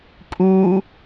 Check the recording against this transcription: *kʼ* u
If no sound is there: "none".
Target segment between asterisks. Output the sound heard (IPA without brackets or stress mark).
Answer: kʼ